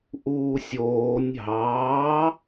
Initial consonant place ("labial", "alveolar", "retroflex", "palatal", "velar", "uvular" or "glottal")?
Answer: glottal